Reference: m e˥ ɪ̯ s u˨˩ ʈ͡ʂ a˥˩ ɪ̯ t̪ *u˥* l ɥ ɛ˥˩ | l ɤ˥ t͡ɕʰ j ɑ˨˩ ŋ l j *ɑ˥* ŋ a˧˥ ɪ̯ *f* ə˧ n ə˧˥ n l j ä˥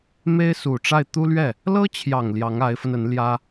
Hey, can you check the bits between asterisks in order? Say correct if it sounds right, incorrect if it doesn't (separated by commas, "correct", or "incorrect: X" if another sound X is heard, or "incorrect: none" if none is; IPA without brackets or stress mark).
correct, incorrect: ɑ˧˥, correct